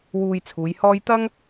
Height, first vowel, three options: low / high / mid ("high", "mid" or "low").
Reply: high